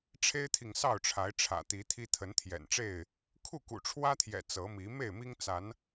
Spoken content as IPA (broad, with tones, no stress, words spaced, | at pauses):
ʈ͡ʂʰe˦ɪ̯t̪ʰi˨ŋsɑ˥˨ʊ̯ʈ͡ʂʰa˨˦ɪ̯ ʈ͡ʂʰä̰˨˩t̪i˨˦t̪ʰi˦ t̪ʰə˨˦nt̪ʰjɛ̰˨˩nʈ͡ʂe˥˨ɪ̯ | kʰu˥˨kṵ˨˩ʈ͡ʂʰwä˦t̪ʰjɛ̰˨˩ t͡sɤ˨˦mi˨˦ me˥˨ɪ̯mi˦ŋ t͡sa˨˦n